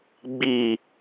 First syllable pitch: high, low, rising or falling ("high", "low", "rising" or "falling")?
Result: low